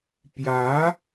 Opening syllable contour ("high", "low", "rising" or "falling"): rising